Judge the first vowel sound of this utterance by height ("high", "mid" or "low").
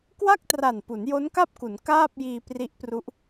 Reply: low